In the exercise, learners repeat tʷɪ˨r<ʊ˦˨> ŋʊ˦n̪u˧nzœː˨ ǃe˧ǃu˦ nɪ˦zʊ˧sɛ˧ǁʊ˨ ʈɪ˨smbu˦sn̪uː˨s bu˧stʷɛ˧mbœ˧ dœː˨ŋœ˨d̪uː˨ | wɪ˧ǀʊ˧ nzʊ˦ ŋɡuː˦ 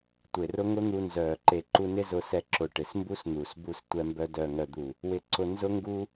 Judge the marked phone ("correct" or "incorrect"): incorrect